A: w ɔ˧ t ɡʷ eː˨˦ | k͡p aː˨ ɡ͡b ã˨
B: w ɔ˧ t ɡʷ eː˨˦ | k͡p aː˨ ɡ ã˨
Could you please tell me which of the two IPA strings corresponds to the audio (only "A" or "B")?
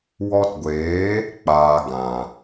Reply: B